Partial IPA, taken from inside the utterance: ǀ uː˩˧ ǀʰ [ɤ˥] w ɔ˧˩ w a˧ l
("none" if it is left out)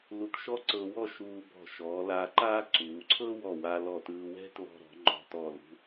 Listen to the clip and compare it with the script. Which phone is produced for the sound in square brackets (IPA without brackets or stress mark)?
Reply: ɤ˥